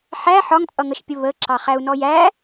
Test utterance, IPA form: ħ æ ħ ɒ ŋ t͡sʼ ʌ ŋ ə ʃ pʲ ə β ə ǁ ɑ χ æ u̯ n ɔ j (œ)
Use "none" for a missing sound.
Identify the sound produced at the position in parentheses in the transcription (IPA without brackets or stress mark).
æ